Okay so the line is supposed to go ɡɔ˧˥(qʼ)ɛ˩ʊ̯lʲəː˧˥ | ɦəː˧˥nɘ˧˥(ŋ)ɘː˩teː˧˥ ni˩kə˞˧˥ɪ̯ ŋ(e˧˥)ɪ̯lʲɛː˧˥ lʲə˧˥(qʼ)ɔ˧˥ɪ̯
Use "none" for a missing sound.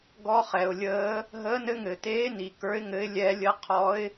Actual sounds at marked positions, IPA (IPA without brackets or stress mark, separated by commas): χ, ŋ, ɘ˧˥, qʰ